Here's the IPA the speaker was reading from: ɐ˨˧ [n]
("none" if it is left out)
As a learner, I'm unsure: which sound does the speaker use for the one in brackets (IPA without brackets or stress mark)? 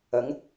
ŋ